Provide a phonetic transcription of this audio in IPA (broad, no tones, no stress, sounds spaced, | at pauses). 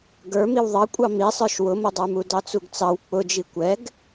ɡ ə˞ m i w ðˤ ɑ kʷʼ ɑ m i sˤ ə˞ ʃ w ʊ m ʊ dˤ ə˞ m u d ɑ t͡s u ɡ t͡s ɑ w k͡p ʊ d͡ʒ i kʷ ɛ ɡ